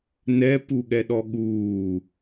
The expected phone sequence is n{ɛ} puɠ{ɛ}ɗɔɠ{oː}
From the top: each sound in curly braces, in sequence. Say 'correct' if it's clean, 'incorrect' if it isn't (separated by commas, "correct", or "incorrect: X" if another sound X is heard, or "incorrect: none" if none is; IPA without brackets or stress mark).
correct, correct, incorrect: uː